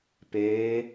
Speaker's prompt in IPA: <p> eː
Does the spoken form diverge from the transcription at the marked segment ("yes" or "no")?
no